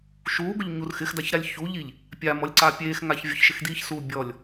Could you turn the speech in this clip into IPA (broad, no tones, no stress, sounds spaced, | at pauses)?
ʃ uː ɡ ʊ ʎ ɲ u r x ɪ x d a ç ɾ a lʲ ç u ʎ i ʎ | pʲ a m ɔ lʲ ǀ a pʲ eː x ŋ a ç vʲ ʊ ç ʃ ɪ x d iː ç s uː bʲ ɔ lʲ